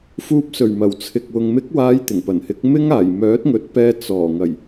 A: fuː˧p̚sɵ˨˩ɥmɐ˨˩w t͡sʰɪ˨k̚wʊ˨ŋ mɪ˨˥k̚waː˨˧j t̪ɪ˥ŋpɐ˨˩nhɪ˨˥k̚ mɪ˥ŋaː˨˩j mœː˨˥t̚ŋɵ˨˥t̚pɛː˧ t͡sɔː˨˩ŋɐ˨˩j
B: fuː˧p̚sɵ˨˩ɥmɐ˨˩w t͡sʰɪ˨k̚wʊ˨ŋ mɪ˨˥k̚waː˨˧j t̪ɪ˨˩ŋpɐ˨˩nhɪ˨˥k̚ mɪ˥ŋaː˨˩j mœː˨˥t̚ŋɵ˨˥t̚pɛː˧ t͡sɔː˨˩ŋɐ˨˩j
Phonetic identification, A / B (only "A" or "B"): B